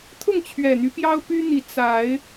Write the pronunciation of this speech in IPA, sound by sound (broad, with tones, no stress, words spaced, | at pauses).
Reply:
t̪ʰʊ˥˨ŋt͡ɕʰɥɛ˨˩n̪y˦ pjɑ˦ʊ̯ py˦n̪i˨˦ t͡sa˨˦ɪ̯